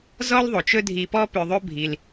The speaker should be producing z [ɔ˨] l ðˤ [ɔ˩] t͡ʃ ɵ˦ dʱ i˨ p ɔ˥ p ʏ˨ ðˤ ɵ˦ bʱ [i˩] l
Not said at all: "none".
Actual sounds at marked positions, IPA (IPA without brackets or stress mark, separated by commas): ɔ˥, o˩, i˩